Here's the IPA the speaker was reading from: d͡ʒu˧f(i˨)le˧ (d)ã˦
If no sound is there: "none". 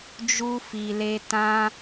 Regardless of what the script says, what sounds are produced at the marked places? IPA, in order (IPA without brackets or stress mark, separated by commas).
i˨, t